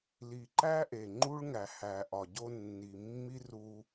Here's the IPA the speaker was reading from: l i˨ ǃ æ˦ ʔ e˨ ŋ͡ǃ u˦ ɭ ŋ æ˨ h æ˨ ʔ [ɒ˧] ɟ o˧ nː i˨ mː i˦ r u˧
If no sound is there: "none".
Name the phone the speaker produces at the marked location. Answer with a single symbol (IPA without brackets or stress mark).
ɒ˨